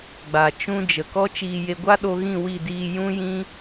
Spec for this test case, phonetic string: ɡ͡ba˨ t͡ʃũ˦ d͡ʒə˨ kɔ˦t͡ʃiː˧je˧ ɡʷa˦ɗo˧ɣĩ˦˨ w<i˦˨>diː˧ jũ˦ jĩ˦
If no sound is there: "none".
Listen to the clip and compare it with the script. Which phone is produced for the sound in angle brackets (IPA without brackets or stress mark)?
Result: i˦˨